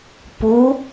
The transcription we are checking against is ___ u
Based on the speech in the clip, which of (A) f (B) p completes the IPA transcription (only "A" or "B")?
B